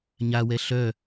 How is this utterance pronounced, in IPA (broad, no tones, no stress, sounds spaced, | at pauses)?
ɲ a w ɛ ɬ œ